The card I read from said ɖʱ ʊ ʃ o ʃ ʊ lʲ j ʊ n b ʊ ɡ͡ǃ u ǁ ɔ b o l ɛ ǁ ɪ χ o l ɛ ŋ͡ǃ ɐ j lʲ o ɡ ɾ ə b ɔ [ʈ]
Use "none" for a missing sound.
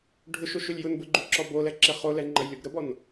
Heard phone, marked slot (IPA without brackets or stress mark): n